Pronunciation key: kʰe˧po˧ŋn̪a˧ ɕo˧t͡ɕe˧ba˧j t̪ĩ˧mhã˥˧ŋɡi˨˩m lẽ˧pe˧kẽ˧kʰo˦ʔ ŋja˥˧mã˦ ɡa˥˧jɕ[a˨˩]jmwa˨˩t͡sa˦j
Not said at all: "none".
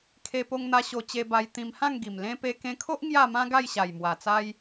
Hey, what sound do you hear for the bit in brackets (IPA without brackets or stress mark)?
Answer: a˨˩